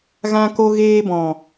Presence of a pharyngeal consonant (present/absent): absent